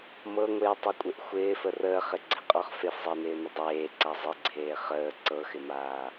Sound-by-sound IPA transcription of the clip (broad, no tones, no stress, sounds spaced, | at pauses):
m ɤ ŋʷ ɪː tˤ ɤ kʷʼ ɪ ʔ xʷ ɪː f ə r əː χ ɪ ɡ͡ǀ ɪ qʼ ɔ χ f e f zˤ ɪː n ɪː n ə dˤ eː ǀ a zˤ ɪ ɡ͡ǀ eː χ əː ǀ ɤ x ɪ m aː